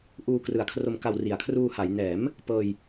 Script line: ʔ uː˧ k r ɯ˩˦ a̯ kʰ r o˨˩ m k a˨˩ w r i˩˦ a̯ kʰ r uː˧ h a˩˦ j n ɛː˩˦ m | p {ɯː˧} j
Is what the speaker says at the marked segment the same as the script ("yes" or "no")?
no